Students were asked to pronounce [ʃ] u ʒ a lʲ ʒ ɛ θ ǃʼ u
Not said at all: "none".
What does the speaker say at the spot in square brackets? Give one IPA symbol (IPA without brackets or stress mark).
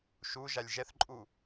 ʃ